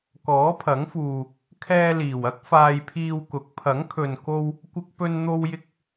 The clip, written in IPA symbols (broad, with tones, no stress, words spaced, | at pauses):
kɔː˨˥pʰɐ˨˥ŋfuː˨ | kʰɛː˧liː˨˩wɐ˥k̚ faː˧jpʰiː˧wkʊ˨˥k̚ pʰɐ˨˥ŋkʰɵ˨nko˧w | kʷɪ˧k̚pɵ˧nn̪o˧wjɪ˧k̚